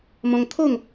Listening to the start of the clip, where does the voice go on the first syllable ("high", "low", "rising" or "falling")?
high